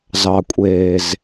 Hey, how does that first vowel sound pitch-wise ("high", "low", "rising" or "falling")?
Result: low